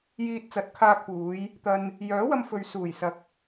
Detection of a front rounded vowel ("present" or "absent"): present